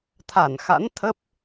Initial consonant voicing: voiceless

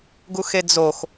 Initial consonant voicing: voiced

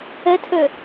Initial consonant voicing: voiceless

